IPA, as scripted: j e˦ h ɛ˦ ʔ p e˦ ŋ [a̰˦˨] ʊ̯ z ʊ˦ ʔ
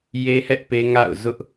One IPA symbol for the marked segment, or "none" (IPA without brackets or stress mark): a̰˦˨